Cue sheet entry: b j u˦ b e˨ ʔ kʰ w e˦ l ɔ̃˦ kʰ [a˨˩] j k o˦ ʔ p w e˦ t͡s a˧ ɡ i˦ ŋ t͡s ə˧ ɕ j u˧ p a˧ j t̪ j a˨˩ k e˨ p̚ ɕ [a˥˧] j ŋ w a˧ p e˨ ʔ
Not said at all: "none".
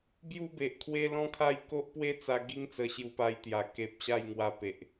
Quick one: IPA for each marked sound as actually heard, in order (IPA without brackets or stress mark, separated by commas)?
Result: a˥˧, a˥˧